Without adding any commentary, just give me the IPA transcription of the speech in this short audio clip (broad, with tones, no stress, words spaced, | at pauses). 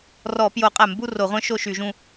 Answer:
rɔ˧˩˧pjo˧˩˧qʼæ˧˩˧mbu˥˧ ro˧˩˧ʁʷœ̃˦˥ ʃo˥˧ʃy˧˩˧ʒũ˥˧